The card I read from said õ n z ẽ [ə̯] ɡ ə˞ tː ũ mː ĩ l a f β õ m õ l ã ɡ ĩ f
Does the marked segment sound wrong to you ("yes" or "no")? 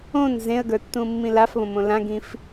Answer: no